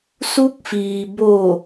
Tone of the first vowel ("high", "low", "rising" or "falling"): rising